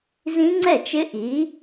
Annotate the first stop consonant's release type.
click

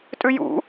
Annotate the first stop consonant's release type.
ejective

